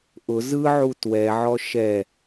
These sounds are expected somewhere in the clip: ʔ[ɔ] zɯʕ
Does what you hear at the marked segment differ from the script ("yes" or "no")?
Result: yes